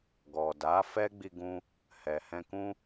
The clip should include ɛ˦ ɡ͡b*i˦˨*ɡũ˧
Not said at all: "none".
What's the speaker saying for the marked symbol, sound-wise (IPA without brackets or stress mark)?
i˧